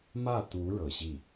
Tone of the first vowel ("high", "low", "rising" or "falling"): falling